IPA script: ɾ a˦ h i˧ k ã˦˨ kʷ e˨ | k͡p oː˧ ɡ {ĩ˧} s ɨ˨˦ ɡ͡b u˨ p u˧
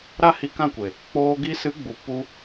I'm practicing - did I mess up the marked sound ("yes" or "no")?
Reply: yes